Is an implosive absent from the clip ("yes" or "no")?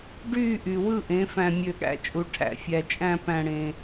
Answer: no